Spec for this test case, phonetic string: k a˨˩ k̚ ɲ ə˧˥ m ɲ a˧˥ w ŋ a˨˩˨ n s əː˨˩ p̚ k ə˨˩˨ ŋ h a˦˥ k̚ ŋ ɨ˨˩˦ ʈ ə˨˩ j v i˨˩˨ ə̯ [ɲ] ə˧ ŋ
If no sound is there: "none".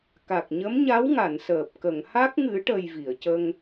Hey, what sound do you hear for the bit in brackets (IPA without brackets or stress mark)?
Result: c